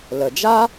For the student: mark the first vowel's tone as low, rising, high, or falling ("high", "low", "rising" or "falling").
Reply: low